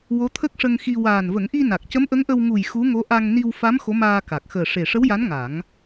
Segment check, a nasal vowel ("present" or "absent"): absent